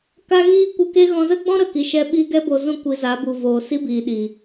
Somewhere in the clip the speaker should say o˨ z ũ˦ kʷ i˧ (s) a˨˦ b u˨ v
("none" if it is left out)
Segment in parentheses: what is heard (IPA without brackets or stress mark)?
z